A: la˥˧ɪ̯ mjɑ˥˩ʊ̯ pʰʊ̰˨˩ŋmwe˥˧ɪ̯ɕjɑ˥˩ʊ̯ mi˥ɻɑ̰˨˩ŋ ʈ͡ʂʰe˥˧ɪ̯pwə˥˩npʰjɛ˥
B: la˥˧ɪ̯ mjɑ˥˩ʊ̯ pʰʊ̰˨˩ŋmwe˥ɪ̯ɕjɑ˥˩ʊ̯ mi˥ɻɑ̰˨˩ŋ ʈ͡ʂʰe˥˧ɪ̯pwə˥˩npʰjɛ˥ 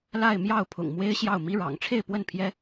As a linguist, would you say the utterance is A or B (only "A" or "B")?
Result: B